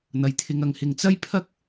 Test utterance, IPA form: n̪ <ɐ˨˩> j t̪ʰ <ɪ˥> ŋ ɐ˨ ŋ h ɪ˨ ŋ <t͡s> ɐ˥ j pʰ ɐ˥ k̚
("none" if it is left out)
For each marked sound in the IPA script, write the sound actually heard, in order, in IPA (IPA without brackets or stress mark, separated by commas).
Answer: ɐ˨, ɪ˨, t͡s